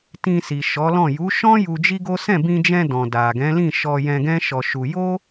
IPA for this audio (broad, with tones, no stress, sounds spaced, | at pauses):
t ĩ˧ s i˨ ʃ ɔ˨˦ l ɔ̃˦˨ j u˨˦ ʃ ɔ̃˦ j u˧ d͡ʒ i˦ ɡ o˦ s ɛ̃˦˨ b ĩ˧ d͡ʒ ɛ̃˧ d ɔ̃˨ d a˨ ɡ ɛ̃˨˦ l ĩ˦˨ ʃ ɔ˧ j ɛ̃˧ ɡ ɛ̃˦ ʃ ɔ˧ ʃ u˧ j o˦